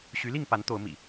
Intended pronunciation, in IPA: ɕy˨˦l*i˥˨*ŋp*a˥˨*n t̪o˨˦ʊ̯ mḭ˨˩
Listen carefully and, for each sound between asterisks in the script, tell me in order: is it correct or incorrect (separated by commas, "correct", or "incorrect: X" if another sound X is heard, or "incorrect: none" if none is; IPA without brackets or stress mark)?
correct, incorrect: a˨˦